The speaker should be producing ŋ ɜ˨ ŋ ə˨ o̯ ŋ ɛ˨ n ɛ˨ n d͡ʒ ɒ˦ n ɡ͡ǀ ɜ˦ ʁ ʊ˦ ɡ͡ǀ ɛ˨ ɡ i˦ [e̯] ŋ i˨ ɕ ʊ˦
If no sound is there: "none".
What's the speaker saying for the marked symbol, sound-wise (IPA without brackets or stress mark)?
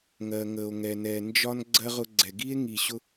e̯